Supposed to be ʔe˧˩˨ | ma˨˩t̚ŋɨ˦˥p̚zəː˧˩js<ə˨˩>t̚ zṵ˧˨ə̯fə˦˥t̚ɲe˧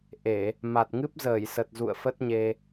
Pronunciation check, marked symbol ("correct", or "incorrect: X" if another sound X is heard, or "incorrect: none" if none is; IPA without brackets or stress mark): correct